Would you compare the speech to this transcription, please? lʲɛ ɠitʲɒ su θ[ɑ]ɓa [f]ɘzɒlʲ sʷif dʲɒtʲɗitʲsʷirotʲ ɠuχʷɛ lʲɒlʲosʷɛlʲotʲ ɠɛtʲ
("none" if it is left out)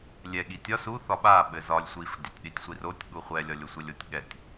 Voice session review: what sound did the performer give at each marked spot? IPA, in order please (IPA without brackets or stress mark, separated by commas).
ɒ, ɓ